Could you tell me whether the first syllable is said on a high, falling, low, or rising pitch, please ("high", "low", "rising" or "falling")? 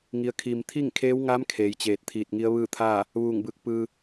rising